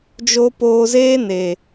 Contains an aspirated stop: no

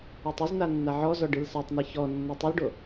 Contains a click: no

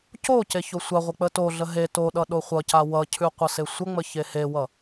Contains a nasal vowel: no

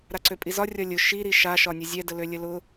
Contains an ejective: yes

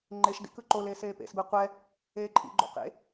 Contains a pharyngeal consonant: no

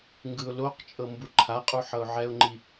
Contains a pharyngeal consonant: yes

